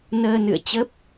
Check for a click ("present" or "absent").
absent